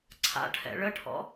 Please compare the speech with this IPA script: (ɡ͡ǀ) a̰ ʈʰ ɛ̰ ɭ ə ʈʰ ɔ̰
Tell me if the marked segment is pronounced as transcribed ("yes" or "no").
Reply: no